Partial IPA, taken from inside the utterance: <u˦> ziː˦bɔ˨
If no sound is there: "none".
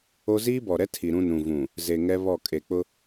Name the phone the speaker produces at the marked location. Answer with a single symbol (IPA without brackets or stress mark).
o˦